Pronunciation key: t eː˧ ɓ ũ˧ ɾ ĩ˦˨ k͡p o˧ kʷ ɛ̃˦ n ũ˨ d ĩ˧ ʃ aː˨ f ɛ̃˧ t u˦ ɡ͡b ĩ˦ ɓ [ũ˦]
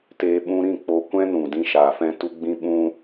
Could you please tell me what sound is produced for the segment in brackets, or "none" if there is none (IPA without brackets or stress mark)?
ũ˦